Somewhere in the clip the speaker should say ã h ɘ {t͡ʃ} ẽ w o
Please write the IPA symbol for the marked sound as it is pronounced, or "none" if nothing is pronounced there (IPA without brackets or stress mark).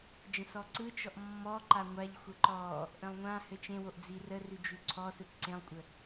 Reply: t͡ʃ